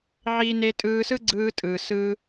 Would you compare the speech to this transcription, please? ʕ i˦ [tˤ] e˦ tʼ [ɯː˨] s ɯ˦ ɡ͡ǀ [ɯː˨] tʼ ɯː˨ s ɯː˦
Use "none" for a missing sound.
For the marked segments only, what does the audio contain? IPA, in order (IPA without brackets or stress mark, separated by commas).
n, ɯː˧, ɯː˧